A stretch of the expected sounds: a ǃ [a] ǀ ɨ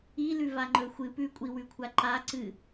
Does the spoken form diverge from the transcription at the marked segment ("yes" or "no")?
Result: no